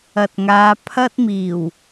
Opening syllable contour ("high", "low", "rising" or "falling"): low